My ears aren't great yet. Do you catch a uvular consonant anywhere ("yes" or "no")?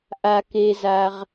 yes